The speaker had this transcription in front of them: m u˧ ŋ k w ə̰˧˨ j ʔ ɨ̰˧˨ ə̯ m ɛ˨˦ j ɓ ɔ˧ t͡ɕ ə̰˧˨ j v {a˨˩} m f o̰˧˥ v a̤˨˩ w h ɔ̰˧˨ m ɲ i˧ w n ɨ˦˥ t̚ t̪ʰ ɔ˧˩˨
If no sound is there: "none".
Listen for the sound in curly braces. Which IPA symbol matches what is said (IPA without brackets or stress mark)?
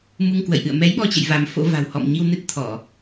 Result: a˨˦